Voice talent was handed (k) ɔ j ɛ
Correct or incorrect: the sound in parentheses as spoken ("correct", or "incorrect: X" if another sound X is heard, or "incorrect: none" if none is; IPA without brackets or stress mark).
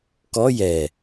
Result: correct